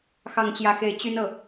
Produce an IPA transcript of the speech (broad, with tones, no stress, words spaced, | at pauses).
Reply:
xɑ˥˧ŋt͡ɕjä˥˧xe˥˩ɪ̯ t͡ɕy˥nɤ˨